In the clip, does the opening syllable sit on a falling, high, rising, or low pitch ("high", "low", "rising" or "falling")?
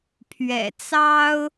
low